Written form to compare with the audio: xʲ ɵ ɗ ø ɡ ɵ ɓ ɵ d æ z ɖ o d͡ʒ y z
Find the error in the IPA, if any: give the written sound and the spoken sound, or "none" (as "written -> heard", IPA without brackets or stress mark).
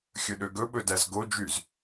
ɖ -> ɡ